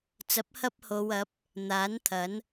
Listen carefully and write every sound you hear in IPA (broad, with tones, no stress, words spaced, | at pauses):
t͡sɐ˨˥p̚ hɐ˥p̚ho˨˧wɐ˨˥p̚ | n̪aː˨˥nt̪ʰɐ˨˥n